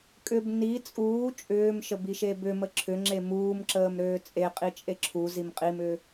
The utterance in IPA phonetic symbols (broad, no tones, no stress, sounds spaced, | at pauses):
kʼ ʏ b n i t͡sʼ uː t͡ʃʼ ʏː m ʃ ə b i ʃ e b ʏ m ə ǁʰ ʏ ŋ͡ǁ e m uː m ǁ əː m ɾ øː t͡sʼ e qʼ i t͡ʃʼ e ǁʰ u z i m qʼ i m ʏː